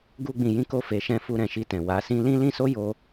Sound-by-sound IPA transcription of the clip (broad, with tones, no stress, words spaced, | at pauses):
ɡu˦ɡ͡bĩ˧ jĩ˦ko˦ fe˧ʃɛ̃˦ fu˧ɾɛ̃˨ʃi˧tɛ̃˨ wa˨˦sĩ˦ lĩ˦lĩ˦so˦ jo˦